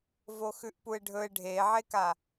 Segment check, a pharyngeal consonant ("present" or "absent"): present